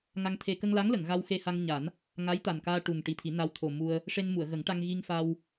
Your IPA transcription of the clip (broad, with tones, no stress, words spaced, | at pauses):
ŋa˧ŋt̪ʰe˧ kə˧ŋla˧˥ŋlə˨˩˨ŋ ɣa˧wxe˧ha˧ŋɲa˨˩˦n | ŋa˧˥jt̪a˨˩nkaː˧ ʈu˨˩ŋ ʈi˨˩t̪ʰi˨˩˦na˧w t̪ʰo˨˩ mu˧ə̯ | ʂe˧nmu˨˩˨ə̯ɣə˨˩˦ŋʈa˧ŋ ɣi˧ŋfa˧w